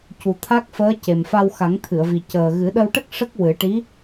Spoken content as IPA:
cu˨˩t̪ʰa˦˥k̚fəː˧˥ ce˨˩mfa˧w xa˨˩˦ŋt̪ʰɨ˨˩˨ə̯vi˨˩ cəː˨˩ ɣɨ˨˩˦ɗə˧wʈə˦˥k̚ ʂə˦˥k̚ wɨ˨˩˦ʈi˧˥

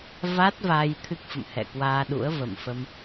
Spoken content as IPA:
va˦˥t̚ vaː˧jt̪ʰɨ˦˥k̚fə̰˧˨m hɛ̰˧˨ kwaː˧ɗṵ˧˥ə̯və̰˧˨mfə˧m

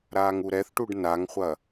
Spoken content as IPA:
ɾaːŋuɾɛθʈuɖ naŋχʷɐ

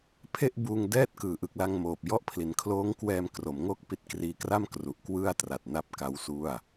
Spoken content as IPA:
pʰe˥˩ʔbuː˧ŋ dɛː˦˥t̚kɯː˩˦ʔɯ˨˩k̚la˧ŋ moː˨˩p̚jɔ˥˩ʔ pʰli˩˦nkʰloː˦˥ŋkwɛː˧m kro˩˦m ŋo˥˩k̚pi˦˥t̚kriː˧kra˥˩m kru˨˩ʔkwɯ˥˩a̯tra˨˩t̚na˦˥p̚ ka˦˥wsu˥˩a̯

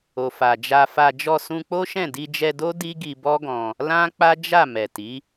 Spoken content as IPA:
o˨fa˨d͡ʒa˧fa˧ d͡ʒɔ˧sũ˧k͡po˦ʃɛ̃˦˨ di˧d͡ʒɛ˧do˦ di˦ɡi˧bɔ˦ɡɔ̃˧ | lã˦ k͡pa˦d͡ʒa˦˨mɛ˨ti˨˦

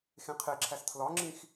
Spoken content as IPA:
xẽqʰeǁʰæs tʰlɒŋ͡ǁĩx

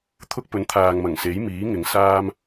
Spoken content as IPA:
t̪ʰʊ˥k̚pɵ˨˥nt̪ʰaː˨ŋmɐ˨˩ŋ se˨˥jmiː˨˥ ŋɪ˨˧ŋsaː˥m

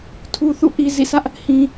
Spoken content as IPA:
tʰu˨θṵ˦˨ ʔi˨zḭ˦˨sä˦ʔ | hĩ˨

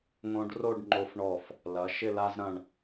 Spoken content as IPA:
ŋõ˧ɖ ro˥˧ɖŋ͡ǃo˧fɳɔ˧˩f | lɐ˩˧ʃɪ˥˧ la˧zɾɐ̃˧˩ɳ

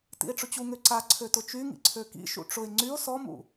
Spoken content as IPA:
tḭe̯ʈ͡ʂʊt͡ɕuŋø ǀa ǀʰøtʊt͡ʃyŋḭ ǀʰøkḭʃṵ ʈ͡ʂʊe̯ ŋ͡ǀyo̯ sɔmṵ

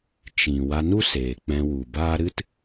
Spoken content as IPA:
t͡ʃĩ˨ wa˧nu˦ seː˨ k͡pɛ̃˧wu˨baː˦ ɾɨ˦t

